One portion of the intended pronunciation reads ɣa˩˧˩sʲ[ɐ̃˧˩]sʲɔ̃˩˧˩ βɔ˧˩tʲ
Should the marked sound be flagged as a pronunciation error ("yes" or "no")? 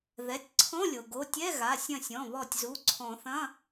no